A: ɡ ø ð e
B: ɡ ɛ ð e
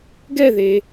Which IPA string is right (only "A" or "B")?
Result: B